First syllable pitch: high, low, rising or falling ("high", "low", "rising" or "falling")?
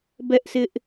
high